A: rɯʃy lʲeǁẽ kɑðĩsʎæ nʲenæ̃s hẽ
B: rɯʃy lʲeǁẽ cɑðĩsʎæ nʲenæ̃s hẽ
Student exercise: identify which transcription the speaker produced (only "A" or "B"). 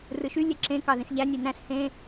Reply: A